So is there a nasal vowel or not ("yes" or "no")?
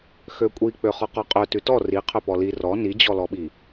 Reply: no